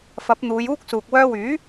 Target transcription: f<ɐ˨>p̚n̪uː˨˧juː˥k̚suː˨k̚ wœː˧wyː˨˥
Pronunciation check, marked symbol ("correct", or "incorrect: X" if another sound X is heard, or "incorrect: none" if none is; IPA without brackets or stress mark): incorrect: ɐ˨˥